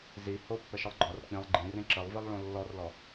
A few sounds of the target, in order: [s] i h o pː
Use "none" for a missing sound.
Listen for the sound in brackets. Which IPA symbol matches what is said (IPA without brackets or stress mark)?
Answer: z